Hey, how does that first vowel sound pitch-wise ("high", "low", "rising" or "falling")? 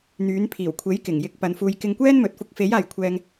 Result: rising